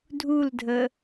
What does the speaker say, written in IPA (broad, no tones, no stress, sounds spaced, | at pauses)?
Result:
dʱ u l dʱ ə